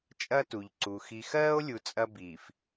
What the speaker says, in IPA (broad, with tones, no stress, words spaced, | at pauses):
t͡ʃʼɐ˦tu˨ʎǀu˨ xi˨xɜː˦o̯lʲu˨ t͡sʼɐ˦ biː˨f